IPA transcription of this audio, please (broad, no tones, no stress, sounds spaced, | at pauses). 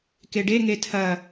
k e ɖ e ŋ e tʰ ɐ